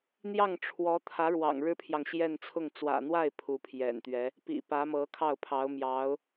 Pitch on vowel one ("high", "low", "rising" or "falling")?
falling